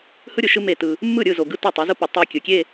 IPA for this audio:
hɯ˦ɾʲʊ˨ʃɯ˦ me˦˨tɯ˦ | mːɯ˦˨ɾʲɯ˦˨zo˨ ɡɯ˦to˦˨tˤɯ˨˦ zʊ˦pɯ˨ tˤe˦kʲɯ˨ kʲe˦˨

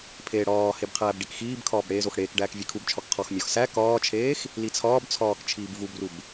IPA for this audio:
pʰeːɽɒːheb qʰæːbɖikxiːbkʰɒːb ɽeːzoxɽeːkɖæːk vʲekʰubt͡ʃʰɒk qʰɒx mʲɒx sæ kɒːt͡ʃʰeːx | lit͡sʰɒːbt͡sʰɒːk t͡ʃʰiːbvubrub

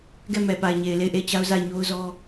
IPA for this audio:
ɡɛ˦˨mɛ˨pa˨ɪ̯ɲe˨ɪ̯ le˦˨ɪ̯ʔe˦˨ɪ̯t͡ɕa˦ʊ̯za˦˨ɪ̯ ɲo˦ʊ̯zɔ˦

